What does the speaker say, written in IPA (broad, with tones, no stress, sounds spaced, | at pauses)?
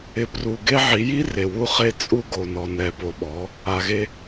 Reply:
ɪ˧ p r u˧ ɡ e˦ ʕ i˨˦ j i˦ r e˨ w u˧ χ e˧ t͡sʼ u˧ ɡ o˨ n ɔ˨ n ɛ˨ p o˨ ɓ ɔ˨˦ | a˧ ɣ e˦